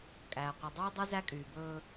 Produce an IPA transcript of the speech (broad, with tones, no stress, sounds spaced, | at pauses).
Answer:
kʼ æː˨ qʷ i˨ dˤ yː˦ dˤ y˦ z æ˦ kʼ yː˨ b ɵː˦